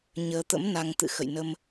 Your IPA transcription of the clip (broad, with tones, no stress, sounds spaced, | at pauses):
ɲ əː˧ t̪ ə̰˧˥ m n a˧ ŋ t̪ ɨ̰˧˨ x ə̰˧˨ j n ə˧ m